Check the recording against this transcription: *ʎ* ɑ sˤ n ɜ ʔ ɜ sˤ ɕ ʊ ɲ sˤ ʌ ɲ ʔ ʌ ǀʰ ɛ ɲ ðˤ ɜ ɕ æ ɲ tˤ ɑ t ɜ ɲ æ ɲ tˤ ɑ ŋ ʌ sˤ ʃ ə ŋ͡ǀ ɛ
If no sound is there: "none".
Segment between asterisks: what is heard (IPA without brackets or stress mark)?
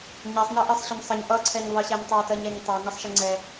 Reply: ɲ